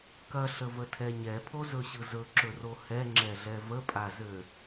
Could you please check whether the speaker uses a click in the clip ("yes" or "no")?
yes